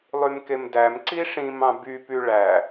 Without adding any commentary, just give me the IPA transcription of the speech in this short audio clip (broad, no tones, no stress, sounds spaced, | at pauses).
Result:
lˠ y m k e m d æ m ǀ i ʂ ĩ m ɑ̃ b y p y ɭ æ